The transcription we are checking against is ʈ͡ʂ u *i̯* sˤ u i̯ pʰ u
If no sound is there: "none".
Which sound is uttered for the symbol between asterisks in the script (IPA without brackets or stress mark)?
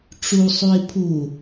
none